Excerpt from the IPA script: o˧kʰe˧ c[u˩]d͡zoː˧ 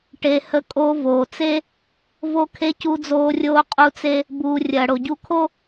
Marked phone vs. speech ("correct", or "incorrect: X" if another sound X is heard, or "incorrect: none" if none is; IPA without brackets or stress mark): incorrect: u˧